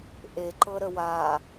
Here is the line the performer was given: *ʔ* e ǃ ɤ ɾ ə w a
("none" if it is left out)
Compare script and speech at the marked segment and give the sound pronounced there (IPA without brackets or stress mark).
ʔ